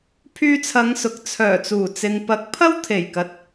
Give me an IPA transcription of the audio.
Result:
pʰ yː˧ t͡sʰ ɐ˨˧ ŋ s ʊ˨˥ k̚ t͡sʰ œː˨˩ t͡s uː˨˩ t͡s ɪ˨ ŋ p ɐ˨˥ k̚ pʰ ɐ˥ w t̪ʰ e˨˩ j k ɐ˨ t̚

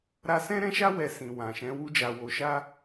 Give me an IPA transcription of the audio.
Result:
ɾ a˦ s ɛ̃˦ ɾ ɛ̃˦ ʃ a˦ w ɛ˧ s ĩ˨ w ã˨ ʃ ɛ̃˨˦ w u˦ d͡ʒ a˧ w o˧ ʃ a˦

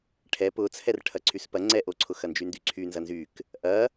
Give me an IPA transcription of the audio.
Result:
ʈʰ ɛ p ʊ t͡sʰ ɛ r ʈʰ ɐ ǀʰ y s p ɐ ŋ͡ǀ ɛ ʔ o ǀʰ ʊ x ɐ n d͡ʒ y n d y ǀʰ y n z ɐ n z y k | ʔ ɐ

